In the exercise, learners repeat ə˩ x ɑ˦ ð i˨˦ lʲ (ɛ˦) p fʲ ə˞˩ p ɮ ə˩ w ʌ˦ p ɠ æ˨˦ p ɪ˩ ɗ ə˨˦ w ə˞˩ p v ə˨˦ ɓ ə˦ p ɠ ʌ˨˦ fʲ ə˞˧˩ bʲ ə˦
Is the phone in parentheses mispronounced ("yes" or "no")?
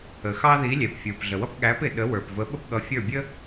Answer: yes